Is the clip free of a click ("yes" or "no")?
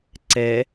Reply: no